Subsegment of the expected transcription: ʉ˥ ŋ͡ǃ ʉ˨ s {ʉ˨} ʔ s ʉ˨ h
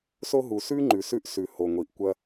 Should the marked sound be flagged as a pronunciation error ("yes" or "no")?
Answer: yes